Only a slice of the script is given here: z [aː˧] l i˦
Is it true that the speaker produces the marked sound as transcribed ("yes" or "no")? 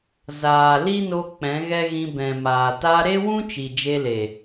no